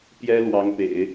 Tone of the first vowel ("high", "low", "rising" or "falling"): high